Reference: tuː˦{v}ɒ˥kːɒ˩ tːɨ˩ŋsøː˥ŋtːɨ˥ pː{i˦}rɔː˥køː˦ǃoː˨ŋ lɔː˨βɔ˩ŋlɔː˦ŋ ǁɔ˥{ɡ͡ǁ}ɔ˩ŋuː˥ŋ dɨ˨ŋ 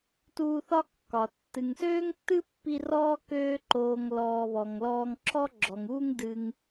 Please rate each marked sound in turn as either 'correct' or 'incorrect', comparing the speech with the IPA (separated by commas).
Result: incorrect, correct, correct